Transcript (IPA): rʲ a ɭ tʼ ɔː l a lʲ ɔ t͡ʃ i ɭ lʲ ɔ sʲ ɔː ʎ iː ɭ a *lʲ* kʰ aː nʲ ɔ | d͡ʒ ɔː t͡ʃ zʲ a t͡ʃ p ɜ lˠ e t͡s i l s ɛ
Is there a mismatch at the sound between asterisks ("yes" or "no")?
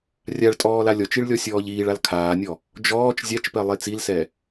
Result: yes